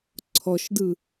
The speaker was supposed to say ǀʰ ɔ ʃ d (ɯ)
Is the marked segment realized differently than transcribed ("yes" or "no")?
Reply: no